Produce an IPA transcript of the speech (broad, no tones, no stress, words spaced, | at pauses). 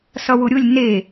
sʌwʊɾʲʊlʲ ne